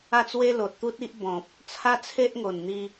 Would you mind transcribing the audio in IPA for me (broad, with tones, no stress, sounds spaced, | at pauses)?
a˥˧ t͡s w e˦ l o˨ t̚ t̪ u˦ t̚ i˦ ʔ b ɔ̃˨ p̚ | t͡sʰ a˦ t͡sʰ e˦ ʔ ŋ o˨˩ n n̪ i˧